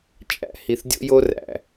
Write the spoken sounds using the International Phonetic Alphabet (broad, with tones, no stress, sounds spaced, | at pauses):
t͡ʃʼ æ̰˨ h i˨ θ dʲ o̰˦ j o˦ r æ̰˨